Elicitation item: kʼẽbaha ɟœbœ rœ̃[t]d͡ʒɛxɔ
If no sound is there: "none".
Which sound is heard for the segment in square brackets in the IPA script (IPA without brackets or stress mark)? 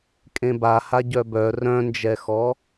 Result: n